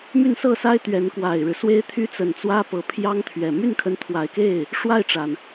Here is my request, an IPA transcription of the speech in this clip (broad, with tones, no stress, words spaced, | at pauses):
my˥˧nsɤ˥˩sa˥ɪ̯ t̪ɥɛ˧˥nkwa˨˩ɪ̯ɻɻ̩˦ swe˥ɪ̯t̪ʰy˥ t͡sə˨˩nt͡swä˥pɤ˧˥ pʰjɑ˥ŋt̪ʰɥɛ˨˩ my˥˩nkʰə˧˥nt̪ʰwa˨˩ɪ̯ke˥˩ɪ̯ | ʂwa˥˩ɪ̯ʈ͡ʂa˩n